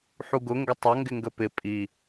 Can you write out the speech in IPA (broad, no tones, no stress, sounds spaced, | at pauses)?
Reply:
ħ u ɡ ʊ ŋ ɡ ə tˤ ʌ ŋ ɡ ɪ ŋ ɡ ə p ɪ pʼ i